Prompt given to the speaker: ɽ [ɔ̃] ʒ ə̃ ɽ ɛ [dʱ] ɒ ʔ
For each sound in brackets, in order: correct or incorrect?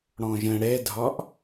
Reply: correct, correct

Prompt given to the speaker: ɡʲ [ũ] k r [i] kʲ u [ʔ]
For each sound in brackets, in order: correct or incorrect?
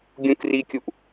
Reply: correct, correct, correct

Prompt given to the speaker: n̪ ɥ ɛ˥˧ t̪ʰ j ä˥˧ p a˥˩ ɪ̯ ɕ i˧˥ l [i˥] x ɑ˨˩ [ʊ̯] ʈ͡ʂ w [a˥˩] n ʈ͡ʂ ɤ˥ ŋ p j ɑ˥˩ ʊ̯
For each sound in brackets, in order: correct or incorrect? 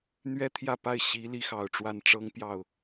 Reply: correct, correct, correct

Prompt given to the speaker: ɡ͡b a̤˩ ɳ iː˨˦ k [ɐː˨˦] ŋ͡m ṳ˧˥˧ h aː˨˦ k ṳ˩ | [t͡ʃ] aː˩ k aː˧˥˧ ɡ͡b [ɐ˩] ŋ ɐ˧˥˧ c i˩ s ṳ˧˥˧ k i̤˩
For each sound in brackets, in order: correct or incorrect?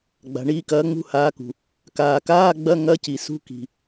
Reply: correct, incorrect, incorrect

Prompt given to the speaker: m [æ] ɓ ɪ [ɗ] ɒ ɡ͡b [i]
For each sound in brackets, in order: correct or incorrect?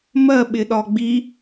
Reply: incorrect, correct, correct

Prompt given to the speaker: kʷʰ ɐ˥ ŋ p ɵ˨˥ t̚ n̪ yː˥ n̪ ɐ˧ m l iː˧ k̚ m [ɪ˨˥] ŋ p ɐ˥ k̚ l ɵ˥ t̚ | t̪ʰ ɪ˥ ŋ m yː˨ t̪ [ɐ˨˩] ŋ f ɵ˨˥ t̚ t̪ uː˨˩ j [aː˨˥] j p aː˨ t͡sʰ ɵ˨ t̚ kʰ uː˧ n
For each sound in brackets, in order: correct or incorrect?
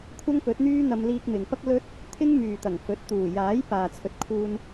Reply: incorrect, correct, correct

